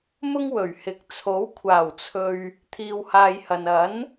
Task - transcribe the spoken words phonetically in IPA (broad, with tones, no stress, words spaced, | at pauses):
mʊ˥ŋwɵ˨˩ɥhɪ˨˥k̚ t͡sʰo˨˥w kʷʰaː˨˩wt͡sʰɵ˨ɥ | t̪ʰiː˧whaː˧jhɐ˨n ɐ˨˥n